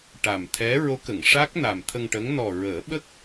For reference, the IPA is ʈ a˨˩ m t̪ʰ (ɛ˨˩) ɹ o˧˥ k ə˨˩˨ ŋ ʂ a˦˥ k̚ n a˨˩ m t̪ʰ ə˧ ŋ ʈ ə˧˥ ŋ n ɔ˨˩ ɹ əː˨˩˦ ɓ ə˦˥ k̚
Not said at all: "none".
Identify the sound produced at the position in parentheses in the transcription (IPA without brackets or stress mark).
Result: ɛ˧˥